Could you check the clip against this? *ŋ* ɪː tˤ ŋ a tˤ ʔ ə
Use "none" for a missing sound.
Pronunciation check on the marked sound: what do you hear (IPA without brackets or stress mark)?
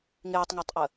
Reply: ŋ